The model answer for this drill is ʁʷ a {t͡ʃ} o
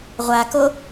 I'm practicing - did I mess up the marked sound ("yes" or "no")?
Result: yes